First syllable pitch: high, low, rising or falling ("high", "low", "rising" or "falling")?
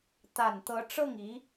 low